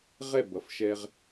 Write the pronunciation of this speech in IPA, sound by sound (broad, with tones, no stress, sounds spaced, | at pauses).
ʁ ɛ˦˨ b ʌ˨ f ʃ ɛ˦ ʁ